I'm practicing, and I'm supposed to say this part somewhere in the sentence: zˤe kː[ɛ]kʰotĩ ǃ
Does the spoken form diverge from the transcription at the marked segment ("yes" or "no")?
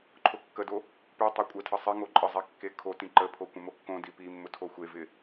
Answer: yes